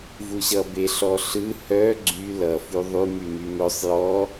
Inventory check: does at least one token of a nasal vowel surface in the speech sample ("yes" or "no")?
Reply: no